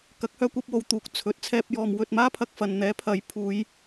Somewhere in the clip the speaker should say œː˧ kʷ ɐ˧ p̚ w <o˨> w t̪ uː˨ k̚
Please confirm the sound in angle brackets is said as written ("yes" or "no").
yes